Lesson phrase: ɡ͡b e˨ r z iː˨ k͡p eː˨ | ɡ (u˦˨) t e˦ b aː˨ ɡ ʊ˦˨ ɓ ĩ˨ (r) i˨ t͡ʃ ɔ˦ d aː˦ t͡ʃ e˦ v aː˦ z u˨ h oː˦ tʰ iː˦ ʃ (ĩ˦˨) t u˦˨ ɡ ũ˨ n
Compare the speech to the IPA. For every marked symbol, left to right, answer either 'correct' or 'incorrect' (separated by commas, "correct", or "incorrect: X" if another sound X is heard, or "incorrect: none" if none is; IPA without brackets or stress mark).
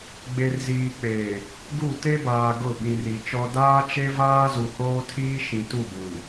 correct, correct, incorrect: ĩ˨